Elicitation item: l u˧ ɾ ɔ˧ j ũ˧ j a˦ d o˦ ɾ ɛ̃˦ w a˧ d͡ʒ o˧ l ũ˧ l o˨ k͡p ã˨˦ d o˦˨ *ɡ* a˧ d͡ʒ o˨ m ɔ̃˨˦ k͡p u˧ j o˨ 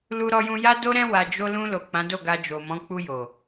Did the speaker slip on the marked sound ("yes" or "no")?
no